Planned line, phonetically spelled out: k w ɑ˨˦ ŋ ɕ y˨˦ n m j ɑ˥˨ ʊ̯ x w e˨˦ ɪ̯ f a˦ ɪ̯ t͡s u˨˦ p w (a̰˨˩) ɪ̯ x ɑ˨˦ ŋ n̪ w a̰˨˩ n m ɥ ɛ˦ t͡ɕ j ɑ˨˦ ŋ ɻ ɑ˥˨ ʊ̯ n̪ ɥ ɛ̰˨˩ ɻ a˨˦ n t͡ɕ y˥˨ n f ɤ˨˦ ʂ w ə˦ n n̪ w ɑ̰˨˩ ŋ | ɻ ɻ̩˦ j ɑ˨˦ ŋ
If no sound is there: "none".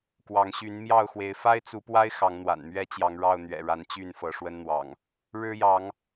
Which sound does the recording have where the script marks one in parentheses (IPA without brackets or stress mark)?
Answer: a˦